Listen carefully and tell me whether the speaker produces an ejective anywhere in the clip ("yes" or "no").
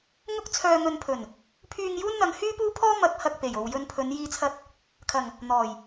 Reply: no